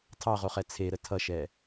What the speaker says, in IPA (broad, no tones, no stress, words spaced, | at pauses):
tʰɑʁoχɛ t͡sʰeɾə tʰʌʃɛ